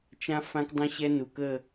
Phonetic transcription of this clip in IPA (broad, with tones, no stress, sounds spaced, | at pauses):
t͡ʃ ã˦ f ã˦ k dˤ õ˦ ɕ ɛ˦ n u˨ k ə˦˨